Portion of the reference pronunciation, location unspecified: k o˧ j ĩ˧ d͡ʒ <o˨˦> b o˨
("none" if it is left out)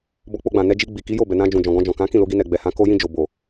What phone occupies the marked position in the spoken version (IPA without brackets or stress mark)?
o˨